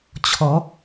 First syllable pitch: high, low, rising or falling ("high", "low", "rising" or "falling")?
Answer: rising